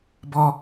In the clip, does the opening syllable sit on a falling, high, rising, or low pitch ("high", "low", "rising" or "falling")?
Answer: high